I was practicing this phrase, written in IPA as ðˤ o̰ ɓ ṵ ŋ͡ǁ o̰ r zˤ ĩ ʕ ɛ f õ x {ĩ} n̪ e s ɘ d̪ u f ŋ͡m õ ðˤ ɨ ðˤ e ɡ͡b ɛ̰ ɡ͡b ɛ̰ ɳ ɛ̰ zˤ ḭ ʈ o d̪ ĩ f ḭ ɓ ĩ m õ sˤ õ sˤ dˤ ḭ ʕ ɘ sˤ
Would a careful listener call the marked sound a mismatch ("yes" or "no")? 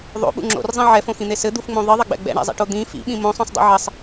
no